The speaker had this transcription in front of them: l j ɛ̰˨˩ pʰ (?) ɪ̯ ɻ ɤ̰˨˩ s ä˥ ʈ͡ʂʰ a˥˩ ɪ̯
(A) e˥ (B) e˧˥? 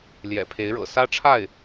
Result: B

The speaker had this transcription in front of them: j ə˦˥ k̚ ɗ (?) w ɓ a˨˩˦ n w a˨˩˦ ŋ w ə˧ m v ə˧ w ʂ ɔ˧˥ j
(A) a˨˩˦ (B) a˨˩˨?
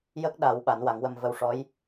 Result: A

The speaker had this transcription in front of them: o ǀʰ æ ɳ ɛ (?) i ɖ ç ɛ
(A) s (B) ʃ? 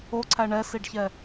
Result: A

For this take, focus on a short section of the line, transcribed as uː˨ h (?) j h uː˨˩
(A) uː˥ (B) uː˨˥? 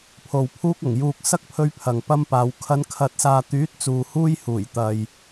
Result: A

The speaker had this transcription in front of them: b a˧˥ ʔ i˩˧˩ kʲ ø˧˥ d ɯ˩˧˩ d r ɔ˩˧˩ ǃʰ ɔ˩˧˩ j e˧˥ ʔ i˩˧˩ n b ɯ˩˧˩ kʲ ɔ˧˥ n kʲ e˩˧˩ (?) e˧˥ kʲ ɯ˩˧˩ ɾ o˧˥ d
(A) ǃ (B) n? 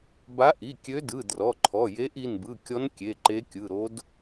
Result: A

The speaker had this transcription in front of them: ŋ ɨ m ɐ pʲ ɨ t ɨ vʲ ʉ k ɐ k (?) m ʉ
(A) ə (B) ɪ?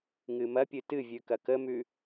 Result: A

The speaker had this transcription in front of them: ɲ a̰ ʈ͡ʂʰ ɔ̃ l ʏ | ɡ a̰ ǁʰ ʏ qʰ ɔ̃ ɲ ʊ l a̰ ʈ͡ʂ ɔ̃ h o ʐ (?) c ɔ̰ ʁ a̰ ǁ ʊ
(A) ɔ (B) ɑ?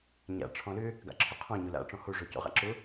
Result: A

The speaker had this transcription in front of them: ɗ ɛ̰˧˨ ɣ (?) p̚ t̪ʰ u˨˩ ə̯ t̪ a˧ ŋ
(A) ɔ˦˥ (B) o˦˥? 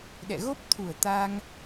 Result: B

